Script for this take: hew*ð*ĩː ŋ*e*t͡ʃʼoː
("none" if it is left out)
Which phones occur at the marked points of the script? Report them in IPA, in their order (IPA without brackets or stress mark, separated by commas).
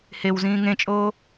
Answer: z, ẽ